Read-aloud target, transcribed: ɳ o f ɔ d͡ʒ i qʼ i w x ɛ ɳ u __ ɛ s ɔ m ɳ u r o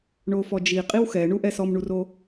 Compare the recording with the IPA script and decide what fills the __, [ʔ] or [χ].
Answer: ʔ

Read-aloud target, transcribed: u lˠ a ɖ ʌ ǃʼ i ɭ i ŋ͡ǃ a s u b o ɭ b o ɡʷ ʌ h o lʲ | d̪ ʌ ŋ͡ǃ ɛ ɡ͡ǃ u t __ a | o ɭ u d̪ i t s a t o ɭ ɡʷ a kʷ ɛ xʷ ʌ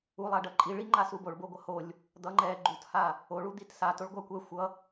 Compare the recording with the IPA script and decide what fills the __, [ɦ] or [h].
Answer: h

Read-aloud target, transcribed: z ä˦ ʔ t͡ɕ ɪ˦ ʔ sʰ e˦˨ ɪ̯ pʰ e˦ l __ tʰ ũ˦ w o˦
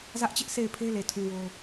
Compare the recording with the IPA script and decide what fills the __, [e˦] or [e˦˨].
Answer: e˦˨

